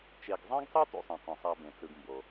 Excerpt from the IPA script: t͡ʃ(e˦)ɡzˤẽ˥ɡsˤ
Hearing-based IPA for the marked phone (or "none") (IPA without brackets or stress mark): e˨